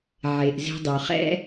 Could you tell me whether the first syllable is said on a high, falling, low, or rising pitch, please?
low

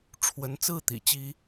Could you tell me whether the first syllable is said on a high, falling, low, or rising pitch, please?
rising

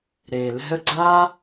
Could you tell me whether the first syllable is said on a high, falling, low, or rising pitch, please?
low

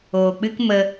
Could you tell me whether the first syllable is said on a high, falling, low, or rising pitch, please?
low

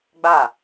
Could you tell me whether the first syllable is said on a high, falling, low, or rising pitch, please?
falling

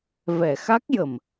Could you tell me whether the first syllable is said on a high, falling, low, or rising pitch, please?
low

